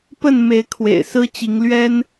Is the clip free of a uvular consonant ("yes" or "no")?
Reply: yes